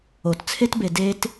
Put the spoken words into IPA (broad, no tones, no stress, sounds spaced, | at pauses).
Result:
o t t͡sʰ e t b e d e t